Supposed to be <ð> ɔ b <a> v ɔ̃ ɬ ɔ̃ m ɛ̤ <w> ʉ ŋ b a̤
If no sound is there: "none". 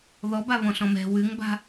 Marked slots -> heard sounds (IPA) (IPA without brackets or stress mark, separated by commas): ð, a, w